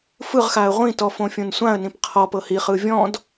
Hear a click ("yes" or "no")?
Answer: no